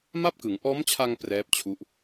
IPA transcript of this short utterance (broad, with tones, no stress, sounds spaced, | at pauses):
m a˥˩ p̚ k ɯ˩˦ ŋ ʔ ɔː˦˥ m t͡ɕʰ a˧ ŋ p r ɛː˦˥ p̚ t͡ɕʰ u˦˥ ʔ